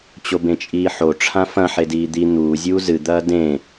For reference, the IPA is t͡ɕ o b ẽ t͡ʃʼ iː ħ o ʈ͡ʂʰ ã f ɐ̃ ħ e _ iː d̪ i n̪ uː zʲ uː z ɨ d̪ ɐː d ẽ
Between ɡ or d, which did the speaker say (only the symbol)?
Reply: d